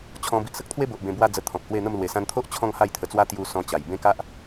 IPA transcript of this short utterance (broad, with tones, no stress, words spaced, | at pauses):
t͡ɕʰɔ̃˧ bi˨ʔsə˦k̚t̪ʰwe˦bo˨ʔ bẽ˧bwa˦ d͡zə˧t̪ʰɔ̃˨p̚hwe˥˧n̪ə˥˧m lwe˨˩sã˧nt̪ʰo˦ʔ t͡ɕʰɔ̃˥˧ŋha˥˧jt̪ʰə˧t͡swa˦ t̪ju˧ sɔ̃˧t͡ɕa˨˩jbẽ˦ka˦ʔ